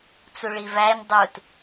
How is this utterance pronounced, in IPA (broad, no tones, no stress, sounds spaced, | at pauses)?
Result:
t͡s u ɭ i v æ ɲ dˤ u t